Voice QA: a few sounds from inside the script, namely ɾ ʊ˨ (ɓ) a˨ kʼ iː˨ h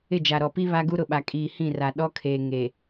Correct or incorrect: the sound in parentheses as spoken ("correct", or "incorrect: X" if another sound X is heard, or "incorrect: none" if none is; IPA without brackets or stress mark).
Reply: correct